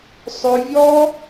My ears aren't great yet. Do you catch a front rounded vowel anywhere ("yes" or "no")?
yes